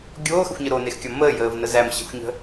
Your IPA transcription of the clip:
ɡʲoːxəxʷɲə ɾonexkʲɒ məːjəːvnə zæmɕə̤xʷɲə̤

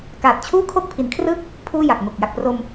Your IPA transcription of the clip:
kaː˨˩t̚t͡ɕʰuː˥˩kʰo˥˩k̚ pʰi˩˦nkʰrɯ˥˩k̚ | pʰuː˥˩ja˨˩k̚ŋo˨˩k̚ ja˨˩k̚pro˧m

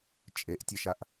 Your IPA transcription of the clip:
t͡ʃʼeʔtʲeʃaʔ

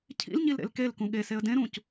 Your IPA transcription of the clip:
cʰḭlɲilɾḛl kelkũ ɠeseə̯ dẽɾũc

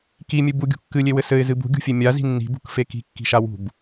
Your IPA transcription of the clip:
kimʲɨ buɡʲṳ kːɨlʲewɘ sɘɪ̯zɨ bṳɡʲṳfʲe mʲazi̤ nːi̤bṳkfe ki̤kːi̤ʃa wṳb

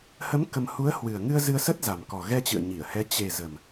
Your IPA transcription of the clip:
hə˨˦m kə˧m hu˨˦ə̯hwɨ˨˩ə̯ŋɨ˧ə̯ zɨ˧ə̯sə˦˥t̚za˨˩m kɔ˨˩ɣɛ˧t͡ɕɨ̰˧˨ə̯ ɲi˧˩ə̯hɛ˨˦ t͡ɕe˨˩ zə˨˩m

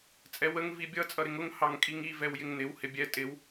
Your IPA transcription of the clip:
t͡sʼɛwəŋ vibʲʌ t͡sʼʌɾɪŋʊŋ hɑŋkʼiŋi vɛwjɪŋnɪw hɪbʲɛ tʼɪw

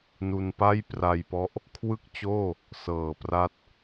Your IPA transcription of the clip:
nu˧npa˥˩jpra˧jpɔ˦˥ʔ | kʰwɯ˥˩k̚t͡ɕoː˥˩ | sɤː˨˩pra˦˥t̚

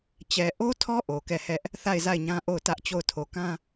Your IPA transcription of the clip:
t͡ɕɛ˨ʔo˦tʰɔ˦ ʔo˨kɛ˦˨hɛ˦ʔ | θa˦˨ɪ̯za˦˨ɪ̯ɲã˦ ʔo˦˨ʊ̯tä˦ʔt͡ɕo˦˨ʊ̯ tʰo˨kã˦

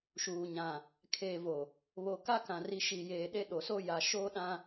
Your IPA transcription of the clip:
ʃuː˨ ɲã˨ | kʰeː˨vo˨ | βo˨ka˦kã˨ ri˨ʃi˨jeː˨ ɗe˦ɗo˨so˦ ja˨ ʃoː˦ɗã˦

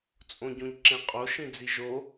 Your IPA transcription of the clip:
t͡sʼõɟõʎǁẽqʼo ʃĩd͡ziʒo

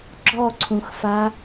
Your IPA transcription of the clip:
ɡ͡ǁɔǀʰũxfa

